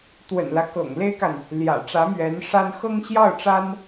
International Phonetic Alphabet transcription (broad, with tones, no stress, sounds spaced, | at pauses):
t̪ w ə̰˨˩ n l ä˦ k ɤ̰˨˩ ŋ l e˥ ɪ̯ k a˨ n | l j ä̰˨˩ ʈ͡ʂ ä˧˥ m ɥ ɛ˧˥ n ʂ a˥ n x ɤ˥ ŋ ɕ j ɑ˥˩ ʊ̯ ʈ͡ʂ a˥ n